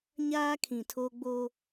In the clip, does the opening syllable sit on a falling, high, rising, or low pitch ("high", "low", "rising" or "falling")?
high